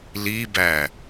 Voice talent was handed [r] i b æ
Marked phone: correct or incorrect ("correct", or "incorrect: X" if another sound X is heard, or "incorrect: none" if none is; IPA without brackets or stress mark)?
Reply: incorrect: l